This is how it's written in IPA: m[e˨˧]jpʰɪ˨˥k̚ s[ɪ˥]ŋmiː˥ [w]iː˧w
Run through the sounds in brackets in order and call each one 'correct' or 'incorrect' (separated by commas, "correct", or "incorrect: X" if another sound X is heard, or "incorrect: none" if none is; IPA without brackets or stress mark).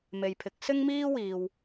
incorrect: e˨, correct, correct